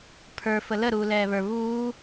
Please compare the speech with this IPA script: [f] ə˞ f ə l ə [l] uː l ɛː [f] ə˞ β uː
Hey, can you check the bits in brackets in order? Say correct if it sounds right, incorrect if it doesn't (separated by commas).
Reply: incorrect, incorrect, incorrect